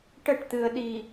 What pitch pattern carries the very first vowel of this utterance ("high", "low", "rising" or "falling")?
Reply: falling